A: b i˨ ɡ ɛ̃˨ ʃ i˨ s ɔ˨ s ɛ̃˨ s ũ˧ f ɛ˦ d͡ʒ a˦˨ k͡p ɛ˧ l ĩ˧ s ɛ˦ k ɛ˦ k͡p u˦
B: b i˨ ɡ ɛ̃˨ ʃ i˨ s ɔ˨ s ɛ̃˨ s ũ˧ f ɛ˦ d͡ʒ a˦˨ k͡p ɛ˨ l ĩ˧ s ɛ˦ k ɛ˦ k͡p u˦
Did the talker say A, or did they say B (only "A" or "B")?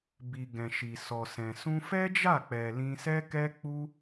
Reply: B